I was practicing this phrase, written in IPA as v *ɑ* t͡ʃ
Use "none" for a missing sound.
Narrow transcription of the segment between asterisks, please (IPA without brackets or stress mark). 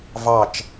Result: ɑ